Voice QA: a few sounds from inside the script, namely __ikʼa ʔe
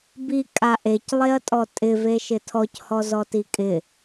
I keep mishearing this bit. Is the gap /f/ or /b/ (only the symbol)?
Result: b